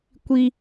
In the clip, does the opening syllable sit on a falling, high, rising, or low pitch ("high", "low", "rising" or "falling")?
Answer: high